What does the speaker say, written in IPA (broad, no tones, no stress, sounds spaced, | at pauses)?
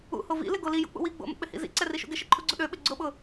ṵ h o v ḭ l ɪ ɡ o l i j ṵ k͡p ṵ w i ɡ͡b o̰ m ṵ k͡p ɪ h ḭ z ḭ ǀ ɛ r i ʃ ṵ ɡ ɪ ʃ ɪ ǃʰ u ɡ͡ǀ ʊ ɗ ø ɓ ɪ ɡ͡ǀ ʊ ɓ ʊ